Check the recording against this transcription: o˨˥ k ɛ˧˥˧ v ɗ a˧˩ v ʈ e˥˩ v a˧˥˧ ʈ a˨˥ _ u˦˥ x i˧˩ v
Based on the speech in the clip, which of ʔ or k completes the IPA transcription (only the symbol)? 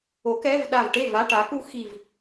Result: k